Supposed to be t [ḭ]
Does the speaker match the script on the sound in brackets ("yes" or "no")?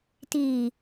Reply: no